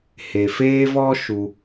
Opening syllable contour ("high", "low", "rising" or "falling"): low